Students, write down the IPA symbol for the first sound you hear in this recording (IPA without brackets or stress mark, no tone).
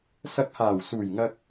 s